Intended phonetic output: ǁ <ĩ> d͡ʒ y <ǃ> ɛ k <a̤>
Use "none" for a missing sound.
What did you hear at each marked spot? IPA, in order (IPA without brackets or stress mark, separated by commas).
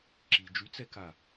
i, t͡s, a